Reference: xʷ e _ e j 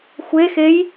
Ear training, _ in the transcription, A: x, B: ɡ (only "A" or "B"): A